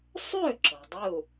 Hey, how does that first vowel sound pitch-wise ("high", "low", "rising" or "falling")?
falling